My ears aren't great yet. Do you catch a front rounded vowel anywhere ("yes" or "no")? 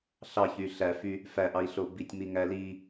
yes